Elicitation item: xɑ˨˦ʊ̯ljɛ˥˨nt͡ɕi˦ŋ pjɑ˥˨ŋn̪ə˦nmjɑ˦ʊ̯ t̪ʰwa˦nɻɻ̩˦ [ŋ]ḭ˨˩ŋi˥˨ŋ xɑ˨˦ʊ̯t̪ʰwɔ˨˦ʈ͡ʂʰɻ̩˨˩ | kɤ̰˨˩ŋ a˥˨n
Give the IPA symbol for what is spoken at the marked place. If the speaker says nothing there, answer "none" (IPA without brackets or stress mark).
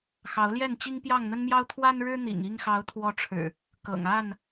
n̪